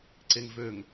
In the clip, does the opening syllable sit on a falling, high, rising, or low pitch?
low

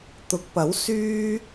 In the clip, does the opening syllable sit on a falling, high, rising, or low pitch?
rising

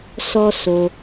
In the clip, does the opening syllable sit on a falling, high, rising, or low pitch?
high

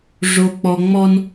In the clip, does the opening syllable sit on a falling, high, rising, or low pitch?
high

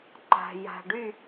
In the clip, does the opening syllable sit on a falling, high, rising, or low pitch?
low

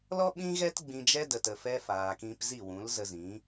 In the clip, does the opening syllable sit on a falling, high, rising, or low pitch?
high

